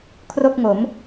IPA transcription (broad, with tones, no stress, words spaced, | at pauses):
kʰro˥˩k̚ŋo˩˦m